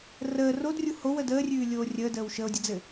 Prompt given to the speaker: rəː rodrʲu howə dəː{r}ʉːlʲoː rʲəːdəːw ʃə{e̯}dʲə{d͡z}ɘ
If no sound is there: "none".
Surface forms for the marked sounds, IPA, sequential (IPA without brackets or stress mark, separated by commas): rʲ, o̯, d͡z